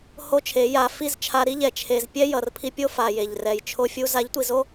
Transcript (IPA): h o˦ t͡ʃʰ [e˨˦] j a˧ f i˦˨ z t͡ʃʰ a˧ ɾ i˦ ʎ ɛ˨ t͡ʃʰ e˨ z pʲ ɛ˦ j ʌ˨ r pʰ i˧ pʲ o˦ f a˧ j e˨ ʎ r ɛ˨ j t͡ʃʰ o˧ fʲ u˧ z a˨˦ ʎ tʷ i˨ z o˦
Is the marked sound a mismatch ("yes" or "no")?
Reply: no